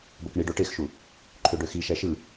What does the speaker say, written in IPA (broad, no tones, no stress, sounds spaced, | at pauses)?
b o k ɳ i ɖ o ʈ e x ʃ u | ǃʰ ø ɖ ø x i ʃ æ ʃ ɯ